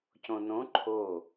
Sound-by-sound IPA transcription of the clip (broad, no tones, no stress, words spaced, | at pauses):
cõnõ ǃʰo